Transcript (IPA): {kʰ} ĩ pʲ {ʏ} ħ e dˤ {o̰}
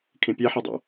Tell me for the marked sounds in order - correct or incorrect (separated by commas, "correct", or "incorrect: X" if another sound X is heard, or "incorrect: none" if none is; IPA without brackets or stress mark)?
correct, incorrect: ɛ, correct